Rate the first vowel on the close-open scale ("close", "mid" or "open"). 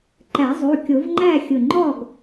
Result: open